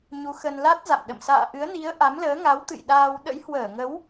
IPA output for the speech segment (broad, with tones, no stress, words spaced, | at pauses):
ɲu˨˦xə˧n la˦˥t̚ za̰˧˨mɗə̰˧˨m sa̰ː˧˨ʔɨ˨˦ə̯ni˨˦ə̯ ʔa˨˦mləː˨˦ ŋa˨˦wt̪ɨ̰˧˨jɗaː˧w ɗə̰˧˥jhwəː˧˩ŋə˨˦w